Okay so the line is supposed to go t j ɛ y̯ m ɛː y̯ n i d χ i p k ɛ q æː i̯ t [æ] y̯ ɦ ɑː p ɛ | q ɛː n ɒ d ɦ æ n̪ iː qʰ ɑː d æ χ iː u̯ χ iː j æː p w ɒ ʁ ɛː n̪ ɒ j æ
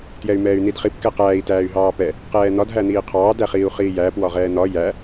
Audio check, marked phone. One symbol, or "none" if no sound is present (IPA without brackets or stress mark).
æː